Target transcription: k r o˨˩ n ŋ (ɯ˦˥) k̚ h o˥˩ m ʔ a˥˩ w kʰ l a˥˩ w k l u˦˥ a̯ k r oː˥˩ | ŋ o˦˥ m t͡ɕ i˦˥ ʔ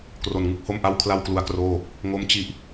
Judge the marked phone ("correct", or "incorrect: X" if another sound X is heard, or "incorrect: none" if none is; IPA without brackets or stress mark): correct